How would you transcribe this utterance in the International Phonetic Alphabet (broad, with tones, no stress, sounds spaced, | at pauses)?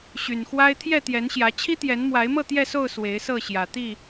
ɕ y˨˩ n x w a˦ ɪ̯ t̪ʰ j ɛ˥˨ t̪ j ɛ˨˦ n ɕ j ä˨˦ t͡ɕʰ i˦ t̪ j ɛ˨˦ n m w a˨˦ ɪ̯ m ɤ˥˨ t̪ j ɛ˥˨ s o˥˨ ʊ̯ s w e˨˦ ɪ̯ s ɤ˥˨ ɕ j ä˨˩ t̪ i˥˨